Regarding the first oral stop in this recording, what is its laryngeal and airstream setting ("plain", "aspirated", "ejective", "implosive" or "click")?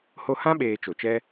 implosive